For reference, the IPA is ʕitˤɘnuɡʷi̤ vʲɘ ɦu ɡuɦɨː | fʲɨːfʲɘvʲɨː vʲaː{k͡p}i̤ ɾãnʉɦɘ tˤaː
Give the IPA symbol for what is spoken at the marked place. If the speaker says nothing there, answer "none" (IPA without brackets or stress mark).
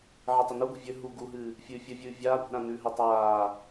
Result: kʷ